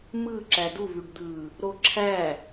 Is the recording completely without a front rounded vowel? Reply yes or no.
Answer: no